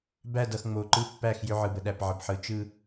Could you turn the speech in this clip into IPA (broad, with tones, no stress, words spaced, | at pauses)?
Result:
bæ˦˨dʌ˨xŋ͡mo˨ǃɯ˦ pːæ˦˨xjʏ˦ʕɯ˨ bə˨ɗæ˨pʕə˨bħɯ˨˦ t͡ʃɯ˦